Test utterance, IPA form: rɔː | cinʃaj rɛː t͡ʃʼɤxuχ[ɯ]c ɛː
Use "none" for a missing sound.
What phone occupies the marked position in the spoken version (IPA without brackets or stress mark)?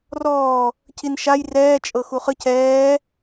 ɯ